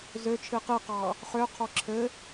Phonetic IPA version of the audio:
z ø t͡ʃʰ ɨ q ɨ q ɑ | χ ø qʰ ɔ ǁʰ ɘ

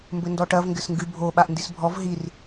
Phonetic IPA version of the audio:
m b ɘ n d ɔ ʈ ɐ v ŋ ɡ ɘ s ŋ ɡ ɨ bʱ o ɓ a ʔ n d i s bʱ ɔ v ɦ i r

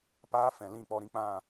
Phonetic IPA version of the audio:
p aː˦ f ɛ̃˨ l ĩ˦˨ k͡p ɔ˧ ɾ ĩ˦ k͡p ã˦˨

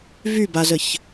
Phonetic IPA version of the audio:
v y b a z ə ç

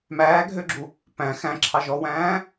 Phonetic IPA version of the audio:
m æː ɡʱ ø ɡ͡ǁ u | p æ̃ x æ̃ ǁʰ ɑ ʒ ɔ w æ̃ː

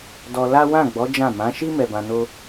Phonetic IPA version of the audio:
d ɔ˧ l a˦ w ã˦˨ ɡ͡b ɔ˨˦ d͡ʒ ã˦˨ m ã˨˦ ʃ i˦ m ɛ˧ b ã˧ n o˦

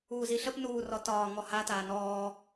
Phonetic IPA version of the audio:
uː z i ɬ ə p n uː r ɔ t ɒː ŋ ɔ h a t aː n ɔː

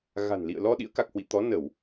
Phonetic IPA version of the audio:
ɣ a̤˨˩ n l ḭ˧˨ ə̯ l ɔ˧ ɗ ḭ˧˥ ə̯ k a˨˩ k̚ h w ḭ˧˨ t̪ ɔ˨˦ n ə˧˩˨ w

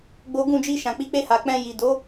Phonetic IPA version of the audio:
ɡ͡b o˦ ɡ ũ˦˨ d͡ʒ i˧ ʃ ã˨ k͡p i˨˦ k͡p e˧ h a˨ k͡p ɛ̃˧ j i˨ d o˨˦

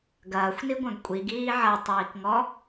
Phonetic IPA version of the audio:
ɡ ɐː xʷ n i ɡʷ œ̃ ɡ kʷʼ i ɡ iː ʕ ɐ tˤ iː k ŋ ɔ

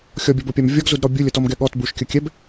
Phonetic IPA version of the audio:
xʲ ɔ bʲ ɔ b o pʲ a m vʲ ɔ ɡ z u d ɾ ɔ bʲ u lʲ ə t ɔ m ɡ ɛ ɠ ɔ t b u ʃ kʲ ə kʲ ɛ b

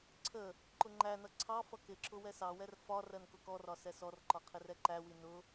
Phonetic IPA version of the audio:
ǀʰ ə | ǃ ʊ ŋ͡ǃ æ n ʌ ǀʰ ɑ f ʌ k ɪ ǁ ʊ w ɛ s ɑ w ɛ r f ɒ r ɜ n k ʊ k ɔ r ɒ s ɛ s ɔ r ǃ ɒ qʰ ɪ r ɛ ǃ æ w i n ʊ

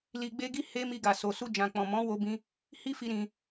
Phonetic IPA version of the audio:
l i˧ ɡ͡b e˦ ɡ i˦ h e˦ m i˧ ɡ a˨ s o˨ s u˧ d͡ʒ ã˨ k͡p ɔ̃˨ m ɔ̃˨˦ w o˦ b ĩ˦ | h i˦ f i˧ ɾ ĩ˧

